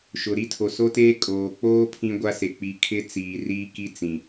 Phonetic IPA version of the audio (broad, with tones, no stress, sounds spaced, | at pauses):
ʃ ʊ˨ ɾ i˦ tʰ o˨ s o˦ t eː˦ kʼ oː˨ k͡p oː˦ pʰ ĩ˦ ɡʷ a˦ s e˨ k͡p i˨ kʰ ɪ˦ t͡s iː˨ r iː˦ k i˦ t͡s ĩ˨